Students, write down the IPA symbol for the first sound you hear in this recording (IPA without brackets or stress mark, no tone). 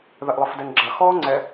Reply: ð